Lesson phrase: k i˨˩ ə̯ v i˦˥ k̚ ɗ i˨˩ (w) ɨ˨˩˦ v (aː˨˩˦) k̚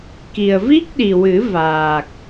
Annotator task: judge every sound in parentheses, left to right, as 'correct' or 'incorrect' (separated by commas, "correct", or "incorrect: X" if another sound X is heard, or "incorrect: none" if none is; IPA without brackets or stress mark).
correct, incorrect: aː˨˩